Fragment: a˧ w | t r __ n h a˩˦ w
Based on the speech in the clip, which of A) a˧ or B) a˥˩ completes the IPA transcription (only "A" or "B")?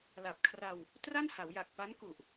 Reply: B